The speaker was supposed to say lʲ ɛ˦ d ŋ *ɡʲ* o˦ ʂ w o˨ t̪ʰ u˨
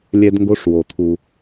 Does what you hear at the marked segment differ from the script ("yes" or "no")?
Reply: yes